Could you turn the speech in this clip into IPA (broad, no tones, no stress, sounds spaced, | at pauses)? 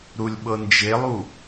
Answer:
ɾ u lʲ ɓ ɤ n d͡ʒ e lˠ u